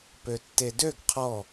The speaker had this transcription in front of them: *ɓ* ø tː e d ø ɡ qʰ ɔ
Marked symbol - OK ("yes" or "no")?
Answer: no